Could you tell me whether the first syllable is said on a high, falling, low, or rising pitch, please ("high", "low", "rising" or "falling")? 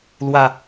low